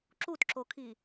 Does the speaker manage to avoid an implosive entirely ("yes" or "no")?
yes